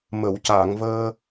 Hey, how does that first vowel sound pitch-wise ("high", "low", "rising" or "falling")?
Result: low